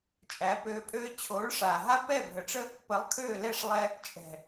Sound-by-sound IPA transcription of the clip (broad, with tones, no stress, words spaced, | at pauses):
t͡ʃʼæ˨˦pøː˧pʼøː˦ t͡ɕʰoː˨˦ɭʂaː˨ɦa˦ pɛ˦˨bʱə˨ʈ͡ʂə˦ | pə˨˦lˠkʰøː˦˨lɛ˦˨ʂ lˠɛ˧ | t͡ʃʼɛ̤˨